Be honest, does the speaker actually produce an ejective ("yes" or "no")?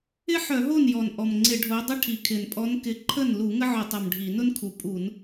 yes